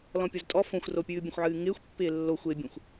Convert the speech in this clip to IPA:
lɔ̃pʲoztʼɔ fõxʷropʲɨː bʲə̃xʷʕɨːŋɪːxʷ pːɪːlːo xʷɪːbʲõxʷ

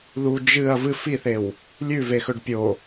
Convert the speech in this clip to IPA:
ðu d͡ʒɨɐ̯ vɨ fiθew | lʲʉvexɵɖ pʲo

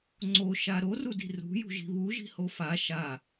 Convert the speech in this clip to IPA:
ŋ͡ǀoʃa ɾorudi̤ rṳjṳʒi̤ βuʒi̤ho fa ʃa

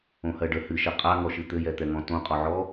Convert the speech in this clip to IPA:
õhɜɖə hɨʃɛ qʼaŋɔʃɨ t̪ɘjɛt̪ɛŋɔ̃ tõqʼɔʕɔ

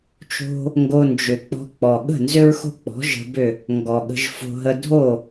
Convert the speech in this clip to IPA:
t͡ʃo̤˦ | ŋɡo˧nd͡ʒʏ˨ k͡pɔ̤˧k͡pɔ˨ ɠə̤˦˨nzʏ˦ɹxo̤˦k͡pɔ̤˨˦ ʒə̤˧bʏ˦˨ | ŋɡɔ˨ɠə̤˧ʒfo̤˧ɦə˧ dʱo˦˨

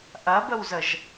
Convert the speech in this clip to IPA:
ʔɐbəwzəʒ

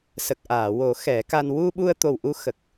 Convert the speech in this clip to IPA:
sə˨˩k̚ʔaː˨˩˨wo˨˩˦ xɛ˨˩˦ka˧n wu˧ɓu˧ə̯t̪o˨˩w ʔu˧xə˨˩k̚

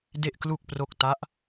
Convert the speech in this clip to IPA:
de˨˩ʔ klu˨˩k̚pro˨˩k̚ ta˦˥ʔ

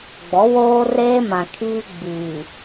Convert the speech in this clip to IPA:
ɡ͡bɔ˨˦woː˦reː˦mã˨ kʰiː˦ɡ͡biː˨

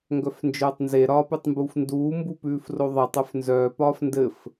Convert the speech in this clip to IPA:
ŋɡœfnd͡ʒœːtˤnze ɾɒːpʉtˤmbuːfnduː mbupʉːfroðˤetˤ œfnzœː pɒːfndɘf

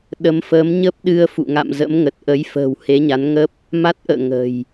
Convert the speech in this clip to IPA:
ɗə˨˦mfəː˨˦m ɲə˦˥p̚ɗɨ˧ə̯fṵ˧˨ ŋa̰˧˨mzə̰˧˥m ŋə˨˩t̚ʔə˨˦j fə̤ː˨˩whe˨˦ɲa˨˦nŋə˦˥p̚ | ma˦˥t̚ʔə̰ː˧˨ ŋə̤˨˩j

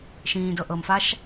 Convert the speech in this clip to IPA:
ʃĩːdɤʔɤmfaʃ

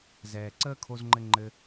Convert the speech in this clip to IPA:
zɛː˨ǀəː˦kʰo˧zŋ͡ǃɘ˧ ŋ͡ǃɘ˧

